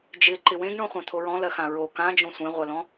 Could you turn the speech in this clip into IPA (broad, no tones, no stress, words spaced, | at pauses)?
d͡ʒɪ ǃɪwẽɡɳõ χʷãt̪ʰoɹɔ̃lɜ xãɹo kãd͡ʒõ sʷẽʁʷɜlɔ̃